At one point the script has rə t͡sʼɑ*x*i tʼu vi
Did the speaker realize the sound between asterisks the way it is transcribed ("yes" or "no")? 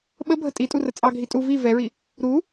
no